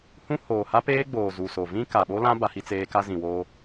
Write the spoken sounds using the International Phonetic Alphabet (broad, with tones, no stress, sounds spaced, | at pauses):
h ũ˦ h oː˨ h a˦ p eː˦ ɡ͡b oː˨ z u˨ s o˨ v ĩ˦ k a˨ ɓ o˦ l ã˦ b a˦ h i˦ t͡s eː˦ k a˦ z ĩ˨ w oː˦